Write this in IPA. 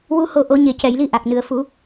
w u˧ h o˧ ʔ o˨˩˦ ɲ e˨˩ c ɛ˨˩˨ j l i˧ ʔ a˨˩ k̚ n ɨ˨˩ ə̯ f u˨˩˦

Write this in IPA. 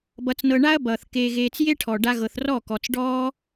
b ʌ˧ t͡s n ɤ˧ ɳ a˦ ɐ̯ b ʌː˨ θ k eː˧ ɣ eː˧ t͡s j e˦ ʈʰ ɔː˨ ɖ a˧ ɣ ɤ˨ θ r ɔ˦˨ k ɔ˨ t͡s ɖ ɔː˦

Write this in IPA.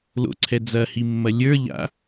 l o̰ ǀʰ ɛ d͡z ɐ h i mː ɐ lʲ ə˞ ʎ a̰

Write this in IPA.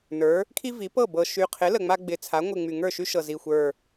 n ə˞˩˧ | kʰ i˦ v i˩˧ p ɤ˥˩ b ɤ˨˩ ʃ y˨˩ qʰ ɪ˩˥ l ə˨˩ ŋ͡m a˦ ɡ͡b ɪ˨˩ t͡sʰ a˩˥ ŋʷ ɪ˨˩ ŋ͡m y˨˩ ŋ ə˞˥˩ ʃ y˦ ʃ ɤ˨˩ z i˨˩ xʷ ə˞˨˩

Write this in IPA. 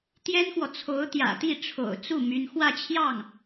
t̪ j ɛ˥ n x w ɔ˨ t͡sʰ o˧˥ ʊ̯ t̪ j ä̰˨˩ t̪ i˥˩ ʈ͡ʂʰ o̰˨˩ ʊ̯ t͡s u˥˩ m y˥ n x w ä˥˧ t͡ɕʰ j ɑ˥˩ ŋ

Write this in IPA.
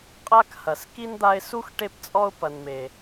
qʼ a˥ k h ɐ˩ s k i˥ n d̪ a˦ ɪ̯ s u˥ x ʈ e˦ p t͡sʼ ɔ˦ ʊ̯ p ɐ˨ n m e˩

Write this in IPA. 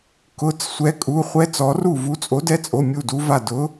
k ʊ˩˧˩ t͡s sʷ ɛ˨˥ kʼ u˩˧˩ χʷ ɛ˦˥ t͡s ɔ˨˥ r u˥˩ v u˨˥ t͡sʼ o˨˥ d ɛ˦˥ t͡sʼ o˩˧˩ mʲ u˥˩ d u˦˥ v a˥˩ d ʊ˨˥

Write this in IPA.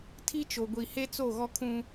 tʰ i˦ t͡ʃ o˨ ɡʷ i˨ h e˦ t͡s o˦˨ ɣ ɔ˦ kʰ ũ˦

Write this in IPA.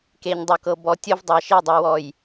k e˨ ɲ dˤ o˨ k ɤ˨ b ɔ˨˦ tʲ o˦ v dˤ a˨ ʃ e˦˨ dˤ ɛ˨ w ɔ˨ j

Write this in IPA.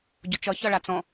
ɟ ʊ t͡ʃ ʌ ç ʌ ɭ a t͡s ɔ̃

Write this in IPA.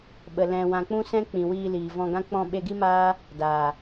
ɓ ə˨ l ɛ̃˨ w ã˨ k͡p ũ˦ s ɛ̃˦ k͡p ĩ˨ w iː˧ l iː˨ v ɔ̃˧ ɡ ã˦ k͡p ɔ̃˧ ɓ e˧ ɡ i˦ m aː˦ | d aː˨

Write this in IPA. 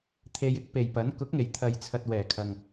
t̪ʰ e˧ j ɪ˥ k̚ p e˨ j p ɐ˨˥ n k ʊ˨˥ k̚ ŋ e˨˩ j t̪ʰ ɐ˨ j t͡sʰ ɐ˨ t̚ w ɛː˨˩ kʰ ɐ˨ ŋ

